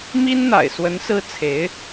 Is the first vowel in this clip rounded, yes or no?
no